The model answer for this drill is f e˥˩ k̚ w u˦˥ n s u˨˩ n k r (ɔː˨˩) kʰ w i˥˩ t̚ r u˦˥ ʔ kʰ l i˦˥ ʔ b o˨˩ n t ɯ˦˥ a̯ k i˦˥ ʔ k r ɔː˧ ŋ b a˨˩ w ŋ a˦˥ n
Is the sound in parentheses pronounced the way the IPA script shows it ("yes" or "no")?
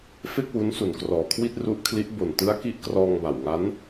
yes